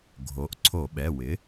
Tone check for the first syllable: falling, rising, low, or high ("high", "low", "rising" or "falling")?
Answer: rising